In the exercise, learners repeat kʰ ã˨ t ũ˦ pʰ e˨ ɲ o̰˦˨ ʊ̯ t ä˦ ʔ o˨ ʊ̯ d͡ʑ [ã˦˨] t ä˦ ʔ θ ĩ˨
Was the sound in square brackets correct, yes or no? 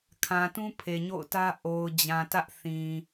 no